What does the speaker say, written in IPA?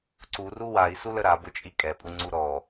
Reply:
ǀ u r u w a i̯ s u l ə ɾ a b ʊ t͡ʃʼ i kʼ ɛ pʼ u ŋ͡ǀ u ɾ ɔ

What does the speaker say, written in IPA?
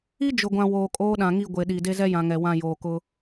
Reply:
i˦ d͡ʒ ʊ˨ ɡʷ ã˨ w oː˨ kʼ oː˦ ɗ ã˨ ŋ i˦˨ ɡʷ e˨ ɗ i˨ d e˦ z ɛ˦ j ã˨ ŋ ɛ˨ w ã˦˨ j oː˨ k ʊ˦

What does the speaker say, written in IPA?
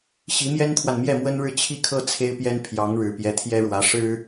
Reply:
ɕ i˧˥ m j ɛ˥ n t̪ʰ w a˨ n m j ɛ˥˩ m w ə˥ n ɻ ɻ̩˥˧ t͡ɕʰ i˥˩ kʰ ɤ˥ t͡sʰ e˥ ɪ̯ p j ɛ˥ n pʰ j ɑ˧˥ ŋ ɻ ɻ̩˨˩ p j ɛ˧˥ t̪ʰ j ɛ˥ ɻ w ä˧˥ ʂ ɻ̩˥

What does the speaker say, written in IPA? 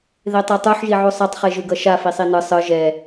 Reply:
ð e tˤ e tˤ u ħ ʒ i ʕ u sˤ a tˤ χ e ʒ ɯ ɡ ʌ ʃ a f i sˤ i n ɯ sˤ ɯ ʒ ɛ

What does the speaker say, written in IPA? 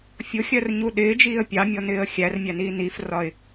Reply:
fʲ ʊ xʲ ɜ r ɲ u ɗ ɪː d͡ʒ iː ə̯ pʲ ɑ mʲ ɔ n ɪː ə̯ xʲ æ r mʲ æ n iː n i f r ɒ ɪ̯

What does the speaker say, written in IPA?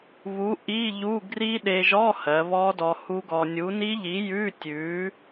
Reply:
β u˨˥ ʔ i˧˥˧ ʎ u˧˥˧ ɡ r i˦˥ ɗ e˧ ʒ ɔ˧˥˧ h ɜ˩˧ β ɔ˦˥ d ɔ˧ h u˦˥ ɡ ɔ˧ nʲ u˨˥ n i˦˥ ʎ i˨˥ j ʉ˧˥˧ tʲ ʉ˨˥

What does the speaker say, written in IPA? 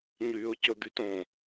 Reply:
ɲ yː ʊ̯ c ɵ d̪ y t õ

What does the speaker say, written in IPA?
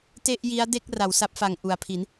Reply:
t e˥˩ ʔ j i˦˥ a̯ d e˥˩ k̚ r a˩˦ w s a˦˥ p̚ f a˨˩ ŋ ʔ u˩˦ a̯ pʰ i˩˦ n

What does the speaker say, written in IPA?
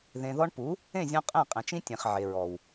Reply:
ð ẽ˨ ð ɔ˧ ɳ p u˨˦ | ẽ˦˨ zʲ ɔ̃˧ qʼ ẽ˦˨ qʼ ẽ˨ t͡ʃ ĩ˦ tʲ ẽ˨ χ ʕ e˨ ɹ ɔ˨ w

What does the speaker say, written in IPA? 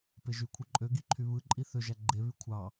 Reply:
p e ʒ y kʷʰ ɯ ǃʼ ø ɡ i ǃʰ y β ɯ ǃʼ i θ ø ʒ æ ɡ͡ǃ e β y kʷʰ ɑ

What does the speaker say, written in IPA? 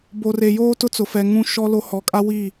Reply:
b o˨ r e˨ j oː˦ t ʊ˦ t͡s ʊ˨ f ɛ˨ ŋ ũ˦ ʃ ɔ˦ l o˦ h ɔ˨ kʼ a˦ w i˦˨

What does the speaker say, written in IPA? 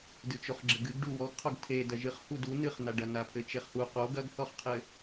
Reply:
d ɨ t͡ʃ o χ ɡ͡ǁ ɘ ɡ ɨ ɡ ɖ u w ɔ ɡ qʰ o ɡ tʰ e d ɐ ʒ ɨ χ h u d u n ɨ χ n a ɖ ɐ n a pʰ ɘ t͡ʃ e χ h u q o ɡ ɐ ɡ θ ɔ χ qʰ ɘ

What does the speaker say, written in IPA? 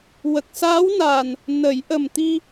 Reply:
w ə˨˩ k̚ s aː˧˥ w n aː˨˩ n | n ə˨˩˦ j ʔ ə˨˩ m t̪ i˧

